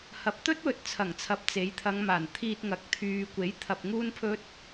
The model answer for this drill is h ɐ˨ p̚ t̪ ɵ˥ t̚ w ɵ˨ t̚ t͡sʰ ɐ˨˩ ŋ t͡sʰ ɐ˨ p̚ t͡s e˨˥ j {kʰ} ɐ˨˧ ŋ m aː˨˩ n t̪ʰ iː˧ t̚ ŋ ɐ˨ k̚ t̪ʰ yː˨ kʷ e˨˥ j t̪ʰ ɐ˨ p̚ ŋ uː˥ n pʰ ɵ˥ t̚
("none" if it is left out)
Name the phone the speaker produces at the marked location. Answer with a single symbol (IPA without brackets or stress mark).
t̪ʰ